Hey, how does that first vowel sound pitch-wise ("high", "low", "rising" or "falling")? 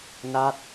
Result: falling